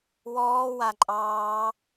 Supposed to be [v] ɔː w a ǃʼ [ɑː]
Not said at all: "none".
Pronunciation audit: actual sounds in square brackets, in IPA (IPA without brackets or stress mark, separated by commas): w, ɑː